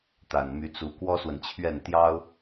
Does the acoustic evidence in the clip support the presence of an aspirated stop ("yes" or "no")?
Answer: yes